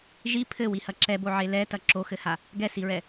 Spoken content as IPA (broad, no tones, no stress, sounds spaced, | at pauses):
ʒ i pʰ ɘ w i h ɐ ǁ ɛ b o ʕ e l ɛ t ɐ ǁ o x ɘ h a | ɡ ɛ s i ɹ ɛ